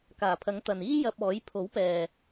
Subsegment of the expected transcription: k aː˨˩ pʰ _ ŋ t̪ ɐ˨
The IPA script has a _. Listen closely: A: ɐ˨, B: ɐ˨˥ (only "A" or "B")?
B